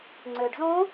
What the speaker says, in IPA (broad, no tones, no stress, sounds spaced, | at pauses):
ŋ͡ǀ ø ɖ z õ